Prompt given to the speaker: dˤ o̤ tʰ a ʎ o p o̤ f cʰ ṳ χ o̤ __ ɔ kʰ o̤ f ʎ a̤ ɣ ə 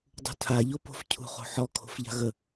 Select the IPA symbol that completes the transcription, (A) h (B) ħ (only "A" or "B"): B